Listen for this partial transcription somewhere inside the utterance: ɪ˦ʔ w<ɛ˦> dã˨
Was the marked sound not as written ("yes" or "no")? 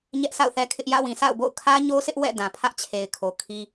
yes